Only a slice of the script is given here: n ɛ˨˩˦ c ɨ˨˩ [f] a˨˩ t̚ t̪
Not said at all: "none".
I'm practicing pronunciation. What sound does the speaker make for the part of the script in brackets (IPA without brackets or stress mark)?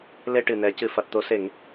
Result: f